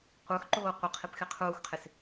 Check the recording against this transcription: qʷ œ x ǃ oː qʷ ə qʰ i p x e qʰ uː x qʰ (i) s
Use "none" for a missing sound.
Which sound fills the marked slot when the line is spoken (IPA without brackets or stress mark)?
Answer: e